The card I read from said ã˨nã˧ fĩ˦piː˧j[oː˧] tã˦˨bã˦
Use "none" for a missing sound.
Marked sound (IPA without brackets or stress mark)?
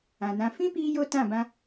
o˧